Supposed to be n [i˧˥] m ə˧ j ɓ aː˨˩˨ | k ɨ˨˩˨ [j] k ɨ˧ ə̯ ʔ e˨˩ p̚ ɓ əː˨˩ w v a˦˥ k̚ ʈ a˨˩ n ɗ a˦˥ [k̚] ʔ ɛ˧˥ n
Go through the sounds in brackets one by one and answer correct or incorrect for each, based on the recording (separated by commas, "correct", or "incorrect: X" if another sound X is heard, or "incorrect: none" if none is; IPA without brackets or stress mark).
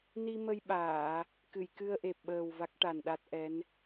incorrect: i˧, correct, incorrect: t̚